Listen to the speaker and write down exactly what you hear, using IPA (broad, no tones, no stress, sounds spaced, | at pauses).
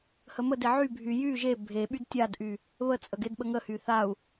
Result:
h ə m ə d e ʕ y bʱ y j y ʒ e bʱ e ɓ y d tʲ a d ʔ y | β ə t͡sʼ ə ɡ e d ɓ ə ŋ ə h y θ a u̯